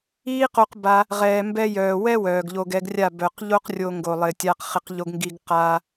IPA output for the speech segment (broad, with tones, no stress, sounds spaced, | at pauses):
iː˦ q o˧ q b a˧ | ʁ ɛː˨ m b ɛ˧ j œː˨ w ɛ˦ w œː˨ ɡ ʎ o˧ ɡ ɛ˧ ɡ rʲ a˦˨ b œ˨ q ʎ o˦ q rʲ o˦ ŋ ɡ o˧ lˠ ɪ˧ tʲ a˦ q χ ɪ˦ q ʎ o˦ ɡ ŋ ɡ i˦ ɡ q aː˦